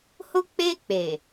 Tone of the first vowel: high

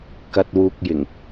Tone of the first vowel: low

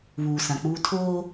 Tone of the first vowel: low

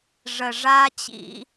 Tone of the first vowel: low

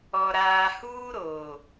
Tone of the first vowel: low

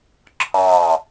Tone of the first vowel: falling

